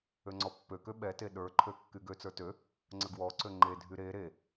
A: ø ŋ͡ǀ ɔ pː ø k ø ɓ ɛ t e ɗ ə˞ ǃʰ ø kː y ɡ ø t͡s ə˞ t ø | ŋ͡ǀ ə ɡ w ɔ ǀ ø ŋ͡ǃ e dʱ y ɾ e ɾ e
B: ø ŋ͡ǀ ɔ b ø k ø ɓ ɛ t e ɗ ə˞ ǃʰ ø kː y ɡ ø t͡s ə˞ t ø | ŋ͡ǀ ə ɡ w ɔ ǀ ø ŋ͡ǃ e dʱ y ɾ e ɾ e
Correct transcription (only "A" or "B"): A